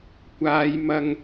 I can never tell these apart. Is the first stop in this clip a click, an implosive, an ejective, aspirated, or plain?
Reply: plain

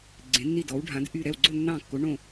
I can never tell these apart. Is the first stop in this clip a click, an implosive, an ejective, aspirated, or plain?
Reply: click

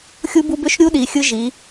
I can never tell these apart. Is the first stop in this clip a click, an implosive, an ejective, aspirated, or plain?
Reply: plain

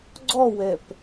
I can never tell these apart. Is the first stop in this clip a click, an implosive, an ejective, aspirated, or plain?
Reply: click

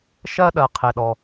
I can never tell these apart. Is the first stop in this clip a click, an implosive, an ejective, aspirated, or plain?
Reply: implosive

